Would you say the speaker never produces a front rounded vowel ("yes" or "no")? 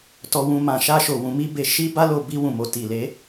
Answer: yes